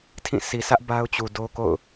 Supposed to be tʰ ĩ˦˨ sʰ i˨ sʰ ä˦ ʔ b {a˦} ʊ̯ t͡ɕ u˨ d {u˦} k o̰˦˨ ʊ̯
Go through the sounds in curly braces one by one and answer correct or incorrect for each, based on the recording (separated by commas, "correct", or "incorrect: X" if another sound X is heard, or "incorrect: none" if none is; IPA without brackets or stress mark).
correct, incorrect: o˦